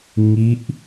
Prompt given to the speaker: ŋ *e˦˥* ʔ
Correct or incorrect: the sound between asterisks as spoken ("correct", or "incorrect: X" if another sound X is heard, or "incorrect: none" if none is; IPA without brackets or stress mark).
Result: incorrect: i˦˥